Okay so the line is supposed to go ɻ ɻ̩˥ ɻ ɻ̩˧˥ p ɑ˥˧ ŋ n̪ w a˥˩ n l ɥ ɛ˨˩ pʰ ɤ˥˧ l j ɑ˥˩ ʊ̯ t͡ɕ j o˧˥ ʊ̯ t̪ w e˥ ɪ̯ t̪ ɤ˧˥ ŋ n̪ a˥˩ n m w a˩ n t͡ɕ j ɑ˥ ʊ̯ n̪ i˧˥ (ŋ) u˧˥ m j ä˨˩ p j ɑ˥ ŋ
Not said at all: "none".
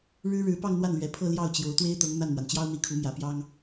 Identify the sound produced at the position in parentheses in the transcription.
kʰ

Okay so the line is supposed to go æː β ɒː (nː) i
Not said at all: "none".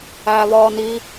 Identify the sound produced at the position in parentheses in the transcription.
n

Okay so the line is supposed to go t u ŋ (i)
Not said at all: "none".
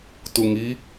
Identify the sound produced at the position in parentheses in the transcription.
i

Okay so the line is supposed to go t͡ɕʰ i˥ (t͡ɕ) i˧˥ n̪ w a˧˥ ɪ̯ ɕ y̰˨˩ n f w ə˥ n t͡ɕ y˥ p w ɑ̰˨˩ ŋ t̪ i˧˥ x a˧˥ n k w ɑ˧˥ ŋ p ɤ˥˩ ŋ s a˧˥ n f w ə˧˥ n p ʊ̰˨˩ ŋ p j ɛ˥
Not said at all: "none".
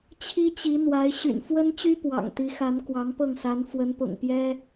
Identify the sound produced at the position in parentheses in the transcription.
t͡ɕ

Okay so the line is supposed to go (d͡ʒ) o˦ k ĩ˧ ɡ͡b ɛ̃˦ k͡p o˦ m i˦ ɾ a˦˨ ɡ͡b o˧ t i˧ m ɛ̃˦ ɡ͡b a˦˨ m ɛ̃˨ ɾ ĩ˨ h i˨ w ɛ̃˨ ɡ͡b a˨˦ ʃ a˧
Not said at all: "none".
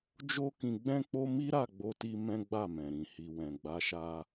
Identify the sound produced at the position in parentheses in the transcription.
d͡ʒ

